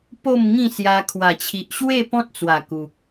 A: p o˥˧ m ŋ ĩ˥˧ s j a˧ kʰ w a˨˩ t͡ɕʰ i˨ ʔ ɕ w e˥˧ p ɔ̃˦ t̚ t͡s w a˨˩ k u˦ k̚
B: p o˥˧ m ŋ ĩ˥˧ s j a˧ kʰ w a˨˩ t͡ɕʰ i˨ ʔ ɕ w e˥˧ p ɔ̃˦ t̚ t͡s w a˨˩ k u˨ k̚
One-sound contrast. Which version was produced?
B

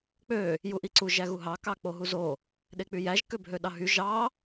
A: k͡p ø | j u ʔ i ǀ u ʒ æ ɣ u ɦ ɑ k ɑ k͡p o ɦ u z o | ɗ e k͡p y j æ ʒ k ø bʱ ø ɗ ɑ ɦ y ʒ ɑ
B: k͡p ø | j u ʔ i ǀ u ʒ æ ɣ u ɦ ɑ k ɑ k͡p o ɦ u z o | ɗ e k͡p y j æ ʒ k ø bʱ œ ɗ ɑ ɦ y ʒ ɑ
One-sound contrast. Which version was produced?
A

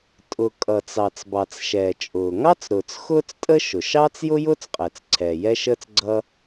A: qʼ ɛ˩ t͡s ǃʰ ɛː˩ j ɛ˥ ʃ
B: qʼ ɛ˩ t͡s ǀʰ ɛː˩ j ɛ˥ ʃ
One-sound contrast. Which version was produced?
B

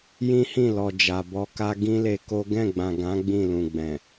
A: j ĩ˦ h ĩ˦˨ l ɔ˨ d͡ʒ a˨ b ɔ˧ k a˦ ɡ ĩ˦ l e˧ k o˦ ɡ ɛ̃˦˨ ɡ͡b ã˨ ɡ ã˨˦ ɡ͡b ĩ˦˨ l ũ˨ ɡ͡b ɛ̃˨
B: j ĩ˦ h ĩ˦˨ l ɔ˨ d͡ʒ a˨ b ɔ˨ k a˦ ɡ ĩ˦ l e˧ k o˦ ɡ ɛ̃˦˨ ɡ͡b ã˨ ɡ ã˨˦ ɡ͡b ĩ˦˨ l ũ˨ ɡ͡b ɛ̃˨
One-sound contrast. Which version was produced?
A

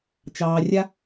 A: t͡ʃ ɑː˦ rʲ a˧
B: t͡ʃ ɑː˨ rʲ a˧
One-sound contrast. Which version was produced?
B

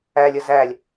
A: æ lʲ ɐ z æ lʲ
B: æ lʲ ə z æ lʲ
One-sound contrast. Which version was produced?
B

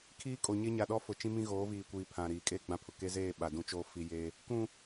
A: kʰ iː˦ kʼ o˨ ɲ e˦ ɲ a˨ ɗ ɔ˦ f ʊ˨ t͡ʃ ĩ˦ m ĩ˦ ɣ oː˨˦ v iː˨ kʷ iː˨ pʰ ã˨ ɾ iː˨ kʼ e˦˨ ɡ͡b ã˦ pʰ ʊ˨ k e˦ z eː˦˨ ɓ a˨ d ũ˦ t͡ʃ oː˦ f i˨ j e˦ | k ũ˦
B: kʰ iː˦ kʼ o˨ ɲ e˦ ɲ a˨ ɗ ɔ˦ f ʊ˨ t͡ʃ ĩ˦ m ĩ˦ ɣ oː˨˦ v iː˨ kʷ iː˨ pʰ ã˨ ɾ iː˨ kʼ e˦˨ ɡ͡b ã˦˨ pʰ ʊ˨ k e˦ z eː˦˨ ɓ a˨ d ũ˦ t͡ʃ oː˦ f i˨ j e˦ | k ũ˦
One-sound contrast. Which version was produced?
B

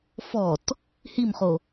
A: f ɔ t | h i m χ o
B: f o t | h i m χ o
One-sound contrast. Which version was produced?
A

